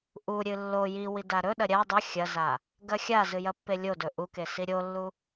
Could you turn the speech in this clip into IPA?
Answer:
ʔ u ɾʲ ɨ lː o j i w i d a ɾ ɵ ɗ ɐ ɾʲ a dˤ ɵ xʲ ɐ z a | ɡ ɐ xʲ a z ɨ j ɐ pː e lʲ o d ɵ ʔ u k e s i ɾʲ o lː u

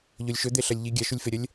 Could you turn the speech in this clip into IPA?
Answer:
ʎ o lʲ ʃ ɵ d̪ e ɬ ɐ lʲ ʎ i ɡʲ a ʃ u lʲ f e ɾʲ ɐ lʲ

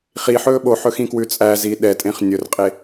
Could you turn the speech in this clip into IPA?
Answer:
χ i ħ ɵː ɓ o ħ ɵ x ĩ k w ʉ t͡sʼ æ z i ɗ ɛ tʼ ẽ χ nʲ ɵ r qʼ e

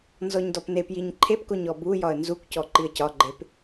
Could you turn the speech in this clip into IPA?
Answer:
n z ɔ ɲ d ɔ p n e p j i ɲ ǃʰ e p k o ɲ ɔ b u j ɒ ə̯ n z u kʷ c ɔ ǃ i ə̯ c ɒ ɡ͡ǃ e p

